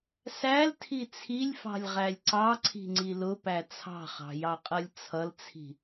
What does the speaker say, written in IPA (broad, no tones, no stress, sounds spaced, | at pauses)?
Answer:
s æ l tʰ i t͡sʰ i lʲ f ɑ̤ lʲ ʁ æ lʲ ǀ ɑ ǀʰ i̤ ŋ͡ǀ i l ʊ p æ t͡sʰ ɑ̤ χ ɑ̤ j ɑ qʼ ʌ lʲ t͡sʰ ʌ l t͡sʰ i̤